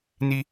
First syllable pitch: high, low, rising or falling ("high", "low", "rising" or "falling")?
high